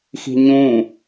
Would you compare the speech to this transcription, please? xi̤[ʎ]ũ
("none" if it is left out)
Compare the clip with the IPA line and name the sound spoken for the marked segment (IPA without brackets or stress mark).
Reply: ɲ